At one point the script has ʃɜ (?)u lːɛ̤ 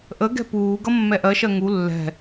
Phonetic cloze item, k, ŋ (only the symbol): ŋ